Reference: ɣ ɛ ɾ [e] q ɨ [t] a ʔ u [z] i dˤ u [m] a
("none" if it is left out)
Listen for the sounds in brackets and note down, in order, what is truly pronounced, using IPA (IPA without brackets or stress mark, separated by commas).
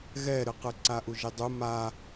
ɨ, ǀ, ʒ, m